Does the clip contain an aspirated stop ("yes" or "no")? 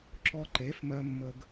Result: no